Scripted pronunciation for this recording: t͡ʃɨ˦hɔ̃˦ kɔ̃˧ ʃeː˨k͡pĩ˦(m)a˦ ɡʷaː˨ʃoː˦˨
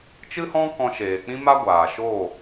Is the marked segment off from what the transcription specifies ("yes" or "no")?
no